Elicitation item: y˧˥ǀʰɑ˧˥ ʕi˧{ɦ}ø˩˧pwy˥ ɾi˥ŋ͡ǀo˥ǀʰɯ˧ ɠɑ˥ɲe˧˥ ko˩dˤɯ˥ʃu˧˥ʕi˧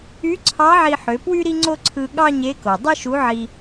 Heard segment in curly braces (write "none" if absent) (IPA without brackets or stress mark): ħ